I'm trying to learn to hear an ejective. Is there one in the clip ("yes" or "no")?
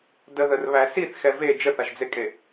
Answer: yes